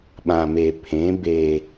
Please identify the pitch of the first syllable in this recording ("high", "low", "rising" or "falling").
low